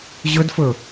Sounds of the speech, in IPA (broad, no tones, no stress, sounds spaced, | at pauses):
ʑ ɵ d f ɵ